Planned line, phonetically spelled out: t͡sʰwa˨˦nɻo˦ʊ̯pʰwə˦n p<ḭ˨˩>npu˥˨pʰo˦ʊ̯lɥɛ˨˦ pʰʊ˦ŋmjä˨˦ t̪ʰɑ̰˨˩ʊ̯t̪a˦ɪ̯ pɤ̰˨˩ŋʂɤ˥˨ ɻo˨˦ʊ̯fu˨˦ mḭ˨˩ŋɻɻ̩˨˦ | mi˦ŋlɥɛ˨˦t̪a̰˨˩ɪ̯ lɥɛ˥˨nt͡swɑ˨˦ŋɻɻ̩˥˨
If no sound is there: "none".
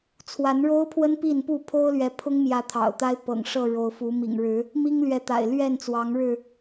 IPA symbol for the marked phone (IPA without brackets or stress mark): i˥˨